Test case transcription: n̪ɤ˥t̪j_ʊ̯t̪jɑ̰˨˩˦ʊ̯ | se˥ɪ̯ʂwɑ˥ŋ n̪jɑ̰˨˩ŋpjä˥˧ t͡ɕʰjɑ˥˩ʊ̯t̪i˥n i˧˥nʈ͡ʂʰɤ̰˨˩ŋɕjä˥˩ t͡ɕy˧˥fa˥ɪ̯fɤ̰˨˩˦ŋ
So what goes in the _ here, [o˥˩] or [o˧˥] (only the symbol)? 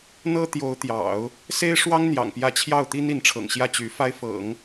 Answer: o˧˥